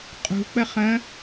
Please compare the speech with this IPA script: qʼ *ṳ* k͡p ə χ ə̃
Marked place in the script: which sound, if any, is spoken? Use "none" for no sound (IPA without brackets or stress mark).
ṳ